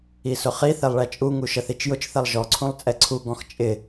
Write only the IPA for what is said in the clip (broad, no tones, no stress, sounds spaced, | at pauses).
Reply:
i s ʊ χ i θ ɛ lˠ ɭ æ t͡ʃʼ u ŋ u ʃ ə θ i t͡ʃ j ʊ t͡ʃ θ ɛ lˠ ʒ ɔ ǀʰ ũ lˠ t͡sʼ ɛ ǀʰ u ɡ ɔ̃ x t͡ʃʼ ɪ